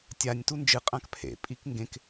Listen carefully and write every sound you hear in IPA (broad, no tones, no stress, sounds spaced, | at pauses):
tʲ a nʲ t u n d͡ʒ ɨ qʼ ã k pʰ ḛ pʼ i k ŋ ɡ ẽ k